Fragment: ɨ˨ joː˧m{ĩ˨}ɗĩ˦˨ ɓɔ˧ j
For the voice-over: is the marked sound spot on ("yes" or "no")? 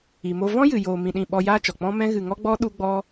no